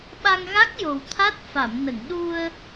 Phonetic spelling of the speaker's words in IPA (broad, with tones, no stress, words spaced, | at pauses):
ɓa˧ŋɣa˦˥k̚ jo˨˩wt̪ʰa˦˥t̚ fa˨˩˨mnə˨˩˨ŋɗu˧ə̯